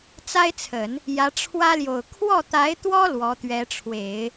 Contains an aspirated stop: yes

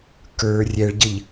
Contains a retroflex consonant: yes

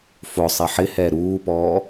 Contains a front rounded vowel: no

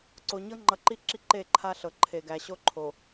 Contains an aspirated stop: yes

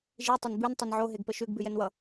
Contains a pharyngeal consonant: yes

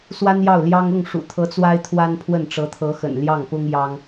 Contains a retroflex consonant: yes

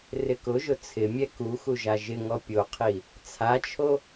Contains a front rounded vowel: no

